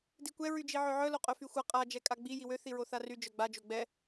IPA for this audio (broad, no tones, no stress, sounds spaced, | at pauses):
d i kʷ ɛ ɹ y d͡ʒ i ʕ ø ʕ œ l o qʼ œ f y xʷ a qʼ a d͡ʒ ɛ kʼ a ɡ͡b i j i w ø θ i ɹ o θ a r y d͡ʒ œ ɡ͡b a d͡ʒ o ɡ͡b ɛ